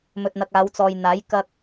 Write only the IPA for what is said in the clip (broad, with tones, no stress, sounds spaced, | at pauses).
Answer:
m ɵ˨ t̚ n̪ ɐ˨ k̚ aː˨˧ w t͡s ɔː˨ j n̪ aː˨˥ j k ɐ˧ k̚